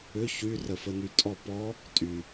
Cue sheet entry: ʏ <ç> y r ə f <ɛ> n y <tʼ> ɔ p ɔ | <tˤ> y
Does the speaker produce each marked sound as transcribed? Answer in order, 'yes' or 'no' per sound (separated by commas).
yes, no, yes, no